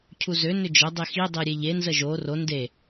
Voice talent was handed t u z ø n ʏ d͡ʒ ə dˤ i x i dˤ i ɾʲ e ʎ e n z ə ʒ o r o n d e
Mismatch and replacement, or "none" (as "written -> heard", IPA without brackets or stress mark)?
t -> cʰ